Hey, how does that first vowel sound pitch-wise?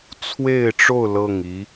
falling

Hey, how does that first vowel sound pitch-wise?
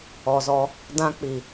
low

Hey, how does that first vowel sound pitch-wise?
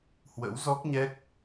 rising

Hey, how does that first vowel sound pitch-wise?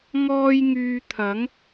high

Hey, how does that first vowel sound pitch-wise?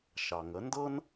low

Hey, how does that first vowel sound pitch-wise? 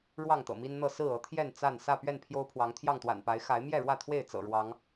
falling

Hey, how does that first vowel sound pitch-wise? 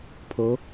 rising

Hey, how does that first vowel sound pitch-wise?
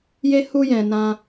high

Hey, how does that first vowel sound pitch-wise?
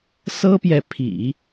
high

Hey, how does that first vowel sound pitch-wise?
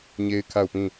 high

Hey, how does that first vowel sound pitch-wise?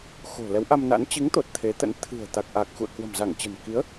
low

